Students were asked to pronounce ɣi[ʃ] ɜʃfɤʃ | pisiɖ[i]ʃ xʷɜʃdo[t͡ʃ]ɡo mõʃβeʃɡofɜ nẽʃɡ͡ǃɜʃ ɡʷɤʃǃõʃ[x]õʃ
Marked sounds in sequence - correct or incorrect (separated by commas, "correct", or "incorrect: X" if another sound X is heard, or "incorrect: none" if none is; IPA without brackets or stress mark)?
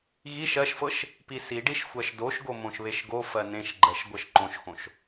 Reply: correct, correct, incorrect: ʃ, correct